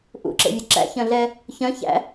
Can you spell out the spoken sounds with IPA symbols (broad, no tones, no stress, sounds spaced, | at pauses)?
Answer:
ʔ ṵ ǁ ḛ vʲ ɵ ǁ æ̰ ç œ̃ ɮ ɛ | ç œ̃ ç æ̰